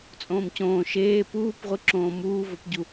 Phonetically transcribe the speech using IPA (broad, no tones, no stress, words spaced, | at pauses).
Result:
t͡sʼõːmcõː ʃeː puːpʁʷiǁõː muːvopɟu